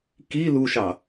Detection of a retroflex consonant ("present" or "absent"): absent